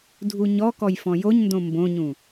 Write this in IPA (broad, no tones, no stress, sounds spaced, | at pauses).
dʱ u ɲ ɔ k ɔ j f ɔ̃ j o ɲ n d õ m b õ ɲ ũ